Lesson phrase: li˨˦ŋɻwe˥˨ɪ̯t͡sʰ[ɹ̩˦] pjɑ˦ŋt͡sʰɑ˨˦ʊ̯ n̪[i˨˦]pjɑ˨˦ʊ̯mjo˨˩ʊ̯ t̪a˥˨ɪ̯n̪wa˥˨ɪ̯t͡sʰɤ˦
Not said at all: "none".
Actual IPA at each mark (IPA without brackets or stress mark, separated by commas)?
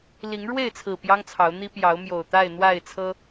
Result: ɹ̩˨˩, i˦